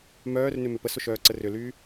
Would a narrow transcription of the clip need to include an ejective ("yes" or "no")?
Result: no